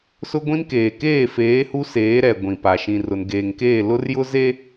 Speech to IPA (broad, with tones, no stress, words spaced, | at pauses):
sʊ˦ɡʷĩ˦n keː˨keː˦˨feː˨˦ hu˦seː˨˦ɾɛ˨ ɡʷĩ˨pa˨ ʃĩ˨rʊ˨nɡeː˨ŋkeː˦˨ lʊ˦r jʊ˦ze˦